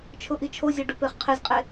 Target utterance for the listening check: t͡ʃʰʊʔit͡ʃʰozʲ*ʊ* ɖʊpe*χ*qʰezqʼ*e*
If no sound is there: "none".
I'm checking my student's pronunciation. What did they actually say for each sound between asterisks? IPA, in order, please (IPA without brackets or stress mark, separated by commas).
ɔ, χ, e